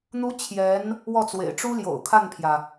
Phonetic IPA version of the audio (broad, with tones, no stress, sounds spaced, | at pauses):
n̪ u˧˥ t͡ɕʰ j ɛ˧˥ n | w ɔ˥˩ t͡s w ḛ˨˩ ɪ̯ ʈ͡ʂ u˥ l j o̰˨˩ ʊ̯ kʰ a˥˩ n pʰ j ä˩